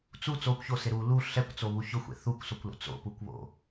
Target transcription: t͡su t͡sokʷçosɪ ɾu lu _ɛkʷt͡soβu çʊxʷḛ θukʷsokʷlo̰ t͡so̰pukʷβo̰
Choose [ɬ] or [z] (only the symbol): ɬ